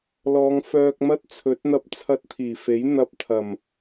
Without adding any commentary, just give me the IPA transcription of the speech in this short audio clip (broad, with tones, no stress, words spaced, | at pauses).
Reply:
lɔː˨˧ŋfœː˧k̚ mɐ˥t̚t͡sʰɵ˨˥t̚ n̪ɐ˧p̚t͡sʰɐ˧t̚t̪ʰiː˨˩fe˨˥j n̪ɐ˧p̚t̪ʰɐ˨˩m